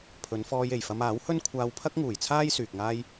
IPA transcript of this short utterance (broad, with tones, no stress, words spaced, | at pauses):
pʰɵ˨˧nfɔː˧j e˨˩jfɐ˧maː˨˥whɵ˥n kʷʰaː˧wpʰɐ˥k̚ŋuː˨˩jt͡sʰaː˥j syː˨k̚ŋaː˥j